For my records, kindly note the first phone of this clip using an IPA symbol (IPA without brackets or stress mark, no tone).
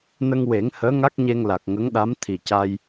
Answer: n